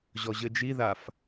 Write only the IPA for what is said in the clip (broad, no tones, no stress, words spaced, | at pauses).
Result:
ʑɔʑɘd͡ʒiðaf